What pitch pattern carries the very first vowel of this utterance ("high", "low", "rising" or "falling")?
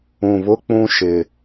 low